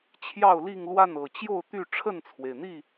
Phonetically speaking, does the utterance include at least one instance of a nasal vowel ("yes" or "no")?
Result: no